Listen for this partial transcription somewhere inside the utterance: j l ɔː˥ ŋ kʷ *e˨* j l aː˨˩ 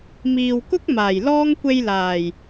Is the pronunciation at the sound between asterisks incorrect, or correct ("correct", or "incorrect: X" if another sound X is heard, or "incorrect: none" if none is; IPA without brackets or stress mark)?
incorrect: e˧